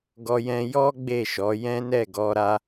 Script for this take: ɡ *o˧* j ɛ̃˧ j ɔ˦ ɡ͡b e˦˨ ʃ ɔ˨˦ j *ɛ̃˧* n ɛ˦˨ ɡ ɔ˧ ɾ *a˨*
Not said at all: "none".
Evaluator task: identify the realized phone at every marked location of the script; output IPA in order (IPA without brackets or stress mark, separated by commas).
ɔ˧, ɛ̃˦, a˧